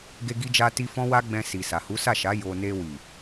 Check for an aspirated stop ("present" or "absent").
absent